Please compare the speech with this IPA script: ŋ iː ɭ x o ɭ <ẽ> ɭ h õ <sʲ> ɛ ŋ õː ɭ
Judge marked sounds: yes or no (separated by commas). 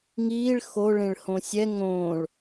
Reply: yes, yes